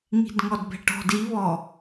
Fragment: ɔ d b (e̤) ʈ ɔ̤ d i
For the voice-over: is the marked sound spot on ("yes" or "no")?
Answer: no